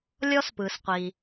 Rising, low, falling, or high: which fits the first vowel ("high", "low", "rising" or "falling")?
high